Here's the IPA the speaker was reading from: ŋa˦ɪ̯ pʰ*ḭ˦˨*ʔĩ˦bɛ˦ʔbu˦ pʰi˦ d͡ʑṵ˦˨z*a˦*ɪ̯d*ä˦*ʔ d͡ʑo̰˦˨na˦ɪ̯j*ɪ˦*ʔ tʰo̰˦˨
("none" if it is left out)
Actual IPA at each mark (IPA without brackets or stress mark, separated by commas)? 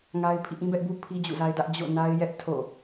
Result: ḭ˦˨, a˦, ä˦, ɛ˦